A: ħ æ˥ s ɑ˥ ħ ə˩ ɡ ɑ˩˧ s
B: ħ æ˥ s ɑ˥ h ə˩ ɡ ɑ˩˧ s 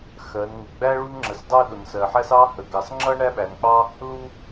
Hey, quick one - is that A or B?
B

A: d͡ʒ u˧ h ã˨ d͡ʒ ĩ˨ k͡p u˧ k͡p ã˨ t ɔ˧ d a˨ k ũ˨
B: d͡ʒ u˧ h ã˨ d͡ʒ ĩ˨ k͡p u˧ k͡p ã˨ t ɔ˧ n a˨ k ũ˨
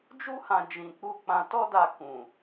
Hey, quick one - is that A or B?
A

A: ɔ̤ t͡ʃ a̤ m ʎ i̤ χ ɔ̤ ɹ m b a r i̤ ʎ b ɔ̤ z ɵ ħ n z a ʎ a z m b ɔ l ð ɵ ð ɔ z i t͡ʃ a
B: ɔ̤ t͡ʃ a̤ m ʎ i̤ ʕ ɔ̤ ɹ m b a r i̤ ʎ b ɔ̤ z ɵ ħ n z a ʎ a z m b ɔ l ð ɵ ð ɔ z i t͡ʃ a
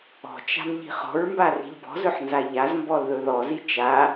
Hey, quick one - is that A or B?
A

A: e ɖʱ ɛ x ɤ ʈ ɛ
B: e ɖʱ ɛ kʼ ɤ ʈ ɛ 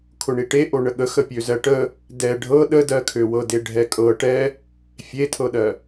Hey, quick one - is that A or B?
B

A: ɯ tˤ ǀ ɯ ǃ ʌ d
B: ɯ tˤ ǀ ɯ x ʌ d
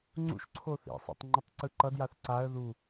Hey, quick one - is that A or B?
A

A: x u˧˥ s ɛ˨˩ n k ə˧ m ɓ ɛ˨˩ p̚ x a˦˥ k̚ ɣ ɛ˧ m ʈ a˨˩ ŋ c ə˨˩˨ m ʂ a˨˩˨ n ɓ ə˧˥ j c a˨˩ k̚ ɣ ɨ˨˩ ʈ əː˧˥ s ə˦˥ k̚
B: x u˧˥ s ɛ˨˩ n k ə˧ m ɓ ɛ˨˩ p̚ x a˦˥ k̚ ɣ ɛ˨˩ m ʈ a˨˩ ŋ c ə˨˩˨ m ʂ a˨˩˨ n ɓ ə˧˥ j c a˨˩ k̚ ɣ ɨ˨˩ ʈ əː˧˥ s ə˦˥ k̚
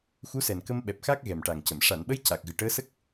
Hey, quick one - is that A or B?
B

